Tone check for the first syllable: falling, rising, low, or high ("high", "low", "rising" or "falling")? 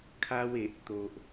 high